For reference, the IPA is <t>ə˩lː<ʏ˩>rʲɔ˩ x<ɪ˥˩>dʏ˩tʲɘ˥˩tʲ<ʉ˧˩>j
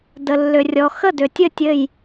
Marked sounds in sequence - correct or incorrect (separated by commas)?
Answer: incorrect, correct, incorrect, incorrect